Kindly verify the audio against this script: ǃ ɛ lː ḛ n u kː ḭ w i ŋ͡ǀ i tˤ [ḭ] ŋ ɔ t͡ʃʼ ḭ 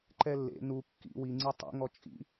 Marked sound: correct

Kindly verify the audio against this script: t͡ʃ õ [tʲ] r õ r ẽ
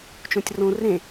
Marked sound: correct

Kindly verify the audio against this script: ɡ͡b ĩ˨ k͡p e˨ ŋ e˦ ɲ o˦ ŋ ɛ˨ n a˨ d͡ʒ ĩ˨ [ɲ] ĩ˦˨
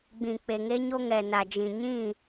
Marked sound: correct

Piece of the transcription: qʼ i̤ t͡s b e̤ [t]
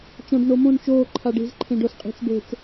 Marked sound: incorrect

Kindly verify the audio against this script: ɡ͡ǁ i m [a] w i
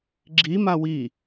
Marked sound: correct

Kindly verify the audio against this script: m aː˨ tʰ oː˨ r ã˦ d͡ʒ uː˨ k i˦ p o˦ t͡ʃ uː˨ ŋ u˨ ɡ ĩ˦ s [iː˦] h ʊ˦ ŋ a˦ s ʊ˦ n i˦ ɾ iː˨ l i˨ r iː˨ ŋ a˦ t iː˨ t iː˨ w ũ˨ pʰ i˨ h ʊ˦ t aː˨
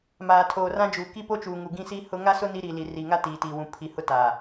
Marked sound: incorrect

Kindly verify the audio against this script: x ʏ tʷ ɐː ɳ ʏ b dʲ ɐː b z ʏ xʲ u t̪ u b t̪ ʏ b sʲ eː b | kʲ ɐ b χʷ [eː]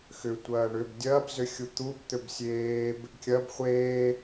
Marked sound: correct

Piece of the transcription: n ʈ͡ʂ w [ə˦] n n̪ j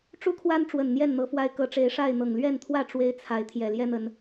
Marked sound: incorrect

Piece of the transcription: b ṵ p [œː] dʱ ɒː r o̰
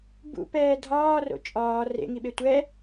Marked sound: incorrect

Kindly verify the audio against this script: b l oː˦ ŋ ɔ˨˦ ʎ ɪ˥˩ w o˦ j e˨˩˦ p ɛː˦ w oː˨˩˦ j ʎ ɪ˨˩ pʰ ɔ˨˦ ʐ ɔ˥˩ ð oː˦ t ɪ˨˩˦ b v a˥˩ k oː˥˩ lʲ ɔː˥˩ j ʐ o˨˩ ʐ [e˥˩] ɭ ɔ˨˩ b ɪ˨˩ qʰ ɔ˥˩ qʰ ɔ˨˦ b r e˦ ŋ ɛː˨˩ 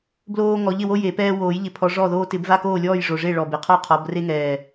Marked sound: correct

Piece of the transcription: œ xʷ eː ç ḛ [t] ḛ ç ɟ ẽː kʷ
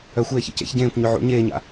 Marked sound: incorrect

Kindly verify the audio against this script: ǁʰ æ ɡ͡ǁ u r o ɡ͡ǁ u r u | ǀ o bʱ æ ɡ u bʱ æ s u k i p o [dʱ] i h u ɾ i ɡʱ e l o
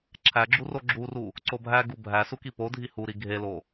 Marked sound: correct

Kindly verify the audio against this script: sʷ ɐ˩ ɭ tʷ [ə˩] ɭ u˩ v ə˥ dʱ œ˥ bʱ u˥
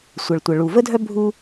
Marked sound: correct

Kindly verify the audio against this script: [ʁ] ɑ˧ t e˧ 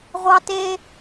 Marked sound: incorrect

